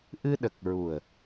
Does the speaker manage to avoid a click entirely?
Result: yes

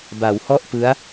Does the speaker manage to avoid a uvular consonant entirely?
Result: yes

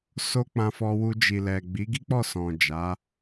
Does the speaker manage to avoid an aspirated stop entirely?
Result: yes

